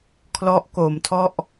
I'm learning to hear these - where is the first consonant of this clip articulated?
velum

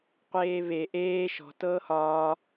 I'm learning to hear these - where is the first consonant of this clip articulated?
uvula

